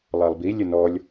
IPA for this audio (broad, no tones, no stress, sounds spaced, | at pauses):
lˠ a lˠ b i lʲ ə n ɔ lʲ